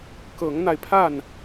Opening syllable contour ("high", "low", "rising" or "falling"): rising